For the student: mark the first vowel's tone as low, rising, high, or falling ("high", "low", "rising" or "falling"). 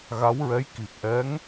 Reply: rising